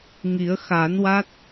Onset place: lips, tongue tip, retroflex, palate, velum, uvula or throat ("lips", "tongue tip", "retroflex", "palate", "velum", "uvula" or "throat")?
velum